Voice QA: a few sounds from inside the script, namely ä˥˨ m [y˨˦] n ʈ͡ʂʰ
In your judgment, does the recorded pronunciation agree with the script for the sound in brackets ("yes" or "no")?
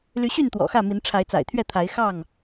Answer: no